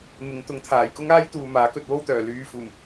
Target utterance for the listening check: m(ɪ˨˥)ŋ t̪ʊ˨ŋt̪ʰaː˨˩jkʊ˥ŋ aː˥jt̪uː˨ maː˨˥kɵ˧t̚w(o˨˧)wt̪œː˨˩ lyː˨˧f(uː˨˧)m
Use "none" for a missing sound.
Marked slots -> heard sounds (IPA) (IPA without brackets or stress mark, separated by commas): ɪ˨˧, o˥, uː˨˩